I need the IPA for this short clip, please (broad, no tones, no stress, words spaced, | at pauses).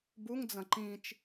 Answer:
buŋd͡zɐ̃ ǃĩt͡ʃ